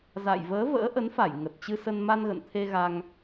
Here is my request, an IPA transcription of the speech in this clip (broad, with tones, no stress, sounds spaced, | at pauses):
z a̰˧˨ j v əː˨˦ v ə̰ː˧˥ ʔ ə˨˦ n f a˧˩ j ŋ ə˨˩ t̚ t͡ɕ ɨ˧ s ə˧ n m a˧ n ɣ ə̰˧˨ n t̪ʰ e˧ ɣ a˧ ŋ